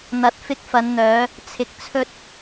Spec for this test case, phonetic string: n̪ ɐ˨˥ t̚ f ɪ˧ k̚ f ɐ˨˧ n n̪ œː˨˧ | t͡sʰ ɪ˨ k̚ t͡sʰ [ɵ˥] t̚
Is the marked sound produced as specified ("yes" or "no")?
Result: no